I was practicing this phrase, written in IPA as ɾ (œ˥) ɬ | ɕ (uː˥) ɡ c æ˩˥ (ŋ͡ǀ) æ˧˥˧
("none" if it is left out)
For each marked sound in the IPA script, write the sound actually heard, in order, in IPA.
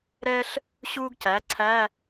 ɛ˥, uː˥, ǀʰ

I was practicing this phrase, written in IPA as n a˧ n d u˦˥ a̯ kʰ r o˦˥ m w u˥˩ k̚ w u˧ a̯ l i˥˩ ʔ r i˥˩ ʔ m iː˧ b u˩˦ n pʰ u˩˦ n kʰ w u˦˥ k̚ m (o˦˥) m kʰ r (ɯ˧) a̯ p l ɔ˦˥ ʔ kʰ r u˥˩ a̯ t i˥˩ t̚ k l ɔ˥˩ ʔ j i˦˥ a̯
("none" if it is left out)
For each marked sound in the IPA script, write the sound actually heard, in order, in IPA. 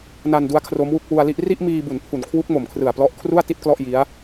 o˨˩, ɯ˨˩

